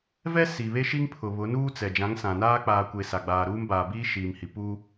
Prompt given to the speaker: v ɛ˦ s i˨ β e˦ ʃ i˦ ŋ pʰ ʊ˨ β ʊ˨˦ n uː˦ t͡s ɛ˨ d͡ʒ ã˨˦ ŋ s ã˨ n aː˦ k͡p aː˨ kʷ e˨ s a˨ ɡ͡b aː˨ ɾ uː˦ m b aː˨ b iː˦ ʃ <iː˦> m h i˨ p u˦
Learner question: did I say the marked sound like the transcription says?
no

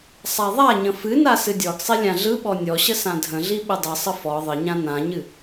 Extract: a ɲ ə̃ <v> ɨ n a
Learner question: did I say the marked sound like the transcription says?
no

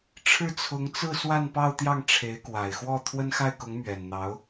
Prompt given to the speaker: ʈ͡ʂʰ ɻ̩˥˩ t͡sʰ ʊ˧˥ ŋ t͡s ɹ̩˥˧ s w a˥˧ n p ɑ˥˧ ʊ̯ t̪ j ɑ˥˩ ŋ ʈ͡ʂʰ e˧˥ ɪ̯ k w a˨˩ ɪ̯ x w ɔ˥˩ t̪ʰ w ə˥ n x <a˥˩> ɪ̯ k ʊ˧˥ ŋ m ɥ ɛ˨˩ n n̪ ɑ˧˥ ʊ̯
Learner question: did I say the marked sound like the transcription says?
yes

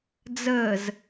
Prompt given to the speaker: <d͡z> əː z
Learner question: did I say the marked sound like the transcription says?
yes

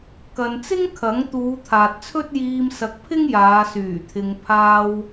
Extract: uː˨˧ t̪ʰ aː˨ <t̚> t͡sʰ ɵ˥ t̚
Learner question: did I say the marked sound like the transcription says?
yes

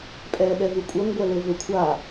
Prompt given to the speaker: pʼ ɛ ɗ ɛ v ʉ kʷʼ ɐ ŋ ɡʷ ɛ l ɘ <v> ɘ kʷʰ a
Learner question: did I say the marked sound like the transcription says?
yes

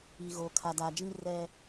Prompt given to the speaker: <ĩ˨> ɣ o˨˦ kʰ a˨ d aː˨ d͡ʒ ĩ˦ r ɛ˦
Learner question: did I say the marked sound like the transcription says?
no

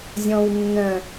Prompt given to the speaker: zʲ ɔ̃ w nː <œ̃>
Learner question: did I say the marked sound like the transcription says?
yes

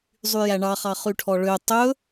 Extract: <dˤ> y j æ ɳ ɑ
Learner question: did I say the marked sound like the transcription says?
no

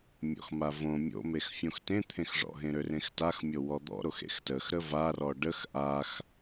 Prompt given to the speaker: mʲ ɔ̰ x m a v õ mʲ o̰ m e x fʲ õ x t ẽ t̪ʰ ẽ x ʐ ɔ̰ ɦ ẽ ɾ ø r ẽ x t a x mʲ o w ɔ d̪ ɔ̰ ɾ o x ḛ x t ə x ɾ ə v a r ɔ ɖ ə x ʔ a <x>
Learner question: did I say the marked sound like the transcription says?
yes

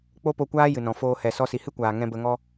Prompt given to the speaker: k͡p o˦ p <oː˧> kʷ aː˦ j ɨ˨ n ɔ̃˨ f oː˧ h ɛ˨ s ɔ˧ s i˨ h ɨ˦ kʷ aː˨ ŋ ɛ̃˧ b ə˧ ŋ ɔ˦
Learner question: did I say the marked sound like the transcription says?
no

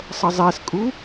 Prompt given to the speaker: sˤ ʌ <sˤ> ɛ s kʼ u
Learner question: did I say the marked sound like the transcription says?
no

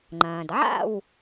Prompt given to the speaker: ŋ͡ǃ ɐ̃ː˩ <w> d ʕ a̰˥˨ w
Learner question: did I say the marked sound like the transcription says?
no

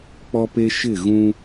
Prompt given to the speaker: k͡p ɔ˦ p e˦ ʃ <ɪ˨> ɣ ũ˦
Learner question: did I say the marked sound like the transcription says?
no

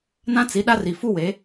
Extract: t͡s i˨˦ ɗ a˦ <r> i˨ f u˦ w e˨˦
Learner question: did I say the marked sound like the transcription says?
yes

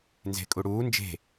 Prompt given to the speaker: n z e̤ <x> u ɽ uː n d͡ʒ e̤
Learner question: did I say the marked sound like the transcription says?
no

